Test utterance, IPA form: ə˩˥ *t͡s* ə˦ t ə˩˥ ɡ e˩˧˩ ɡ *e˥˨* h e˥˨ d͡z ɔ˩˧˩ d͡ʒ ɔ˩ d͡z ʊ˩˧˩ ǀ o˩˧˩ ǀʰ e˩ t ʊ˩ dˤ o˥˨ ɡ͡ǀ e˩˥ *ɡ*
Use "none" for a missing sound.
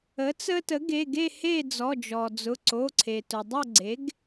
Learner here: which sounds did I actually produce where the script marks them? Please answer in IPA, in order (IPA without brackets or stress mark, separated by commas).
t͡s, e˥˨, ɡ